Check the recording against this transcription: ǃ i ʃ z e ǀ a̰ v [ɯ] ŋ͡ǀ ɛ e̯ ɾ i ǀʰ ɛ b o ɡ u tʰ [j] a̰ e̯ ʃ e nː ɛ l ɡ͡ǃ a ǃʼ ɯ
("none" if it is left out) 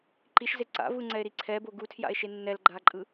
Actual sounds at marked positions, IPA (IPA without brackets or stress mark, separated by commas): ɯ, j